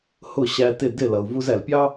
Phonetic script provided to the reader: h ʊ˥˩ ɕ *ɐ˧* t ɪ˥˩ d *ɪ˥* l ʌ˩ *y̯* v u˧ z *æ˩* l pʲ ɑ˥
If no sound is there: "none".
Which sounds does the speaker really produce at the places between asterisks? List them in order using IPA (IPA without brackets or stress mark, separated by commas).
æ˧, ɪ˥˩, u̯, æ˩